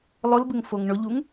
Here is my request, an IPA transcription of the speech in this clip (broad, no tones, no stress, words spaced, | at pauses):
lˠʊlbɪŋfoŋ ɳʊʎuŋ